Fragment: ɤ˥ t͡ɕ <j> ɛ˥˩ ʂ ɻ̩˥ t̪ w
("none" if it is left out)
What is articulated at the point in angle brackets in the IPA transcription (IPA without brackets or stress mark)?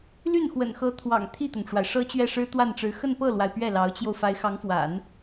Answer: ɥ